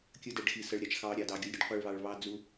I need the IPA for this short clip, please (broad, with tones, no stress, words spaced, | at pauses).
kʲə˧dɛ˨ɖxi˨ sə˧ɭɾʲɑ˨t͡ʃ xɑ˧ ɾʲɑ˧dɑ˧ɡʲʊ˦lʲɾʲə˦ɖ qʷi˧ɭβɑ˧ɭ βɑ˦d͡zu˦